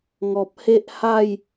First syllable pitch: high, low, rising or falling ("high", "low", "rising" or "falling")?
low